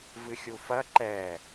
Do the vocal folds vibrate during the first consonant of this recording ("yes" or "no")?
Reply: yes